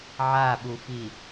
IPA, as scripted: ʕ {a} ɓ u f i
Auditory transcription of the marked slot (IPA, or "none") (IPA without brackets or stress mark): a